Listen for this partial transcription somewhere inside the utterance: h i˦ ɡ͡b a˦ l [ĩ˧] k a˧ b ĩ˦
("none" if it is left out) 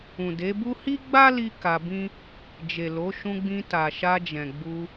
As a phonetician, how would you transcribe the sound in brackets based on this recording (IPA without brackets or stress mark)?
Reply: i˧